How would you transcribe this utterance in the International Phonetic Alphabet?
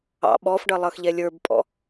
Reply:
ɑ̰ ɓ ɔ f ɖ ʌ lˠ ʌ x ʎ ɛ lʲ ə˞ b pʼ ɔ̰

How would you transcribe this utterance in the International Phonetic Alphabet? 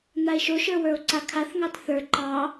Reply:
n̪ a e̯ ʃ o ʃ ə˞ w ə˞ o̯ ǀ a kʰ a θ ŋ ɑ t θ ə˞ ǃ ɑ

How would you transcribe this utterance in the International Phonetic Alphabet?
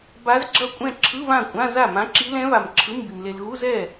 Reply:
b a˧˥ z ɡ͡ǁ ʌ˥˧ kʷʼ ɛ̃˥˧ ǁʰ ɯ˧˥˧ β ã˥˩ kʷʼ ã˧˥˧ z a˥˩ m ã˧˥ ǁ i˧˥ l ɛ̃˧˥ β a˨ m ǁʰ ɯ˧˥˧ m b i˨ m l e˨ l ɣ u˧˥˧ z ɛ˥˩

